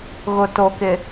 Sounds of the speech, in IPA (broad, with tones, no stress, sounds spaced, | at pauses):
ɣ ʊ˨ t o˨ k ɪ˨